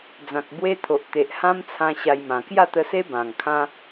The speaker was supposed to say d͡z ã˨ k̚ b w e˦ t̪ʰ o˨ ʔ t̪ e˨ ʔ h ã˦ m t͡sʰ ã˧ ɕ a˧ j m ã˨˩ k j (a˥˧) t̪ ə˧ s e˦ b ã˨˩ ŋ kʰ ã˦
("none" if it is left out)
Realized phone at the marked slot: a˥˧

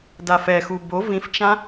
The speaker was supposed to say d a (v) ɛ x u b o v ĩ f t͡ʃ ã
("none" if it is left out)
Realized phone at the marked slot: f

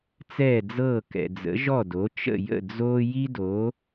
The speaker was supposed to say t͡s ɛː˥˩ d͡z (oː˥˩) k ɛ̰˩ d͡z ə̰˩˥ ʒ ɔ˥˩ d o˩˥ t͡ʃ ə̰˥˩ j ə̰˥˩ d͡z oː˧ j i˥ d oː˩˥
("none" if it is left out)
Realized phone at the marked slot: ɤː˥˩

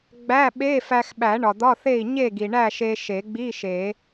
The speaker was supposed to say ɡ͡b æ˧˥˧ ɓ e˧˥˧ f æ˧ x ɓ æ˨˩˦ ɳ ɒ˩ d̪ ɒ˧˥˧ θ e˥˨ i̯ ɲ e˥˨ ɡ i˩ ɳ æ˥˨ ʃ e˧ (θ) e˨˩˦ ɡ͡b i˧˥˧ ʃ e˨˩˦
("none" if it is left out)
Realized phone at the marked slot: ʃ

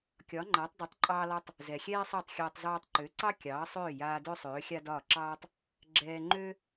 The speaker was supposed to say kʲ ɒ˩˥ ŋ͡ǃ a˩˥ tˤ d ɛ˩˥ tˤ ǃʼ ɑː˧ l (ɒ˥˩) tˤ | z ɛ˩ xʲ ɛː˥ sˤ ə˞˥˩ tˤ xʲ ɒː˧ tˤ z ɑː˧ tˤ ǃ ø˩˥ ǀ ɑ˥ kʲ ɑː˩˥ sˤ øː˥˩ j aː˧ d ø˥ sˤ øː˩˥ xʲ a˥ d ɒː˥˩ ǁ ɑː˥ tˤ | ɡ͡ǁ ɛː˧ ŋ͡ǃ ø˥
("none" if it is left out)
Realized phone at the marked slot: ɒ˧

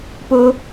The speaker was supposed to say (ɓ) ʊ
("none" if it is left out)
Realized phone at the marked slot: p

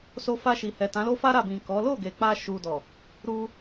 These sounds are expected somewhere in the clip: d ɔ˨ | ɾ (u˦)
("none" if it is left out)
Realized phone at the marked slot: u˧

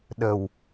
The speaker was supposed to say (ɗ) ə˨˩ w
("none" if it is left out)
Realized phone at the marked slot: ɗ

